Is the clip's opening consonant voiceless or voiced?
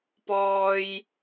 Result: voiceless